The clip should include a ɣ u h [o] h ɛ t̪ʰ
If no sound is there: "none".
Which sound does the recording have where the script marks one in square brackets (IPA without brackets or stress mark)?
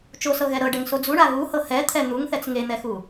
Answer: ɤ